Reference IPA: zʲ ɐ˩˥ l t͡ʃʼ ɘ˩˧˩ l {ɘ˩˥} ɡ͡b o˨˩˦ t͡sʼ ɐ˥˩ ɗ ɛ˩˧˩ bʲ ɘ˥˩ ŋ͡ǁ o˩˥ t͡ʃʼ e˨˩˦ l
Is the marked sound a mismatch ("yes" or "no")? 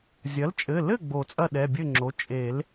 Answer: yes